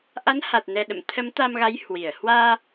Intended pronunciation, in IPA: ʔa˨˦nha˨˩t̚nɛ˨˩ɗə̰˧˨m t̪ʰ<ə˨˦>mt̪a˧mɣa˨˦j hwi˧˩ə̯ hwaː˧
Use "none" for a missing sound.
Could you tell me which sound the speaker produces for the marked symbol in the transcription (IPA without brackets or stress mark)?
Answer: ə˨˦